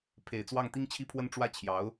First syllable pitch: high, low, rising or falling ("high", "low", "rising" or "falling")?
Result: low